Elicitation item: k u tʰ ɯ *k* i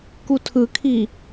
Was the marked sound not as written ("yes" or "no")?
yes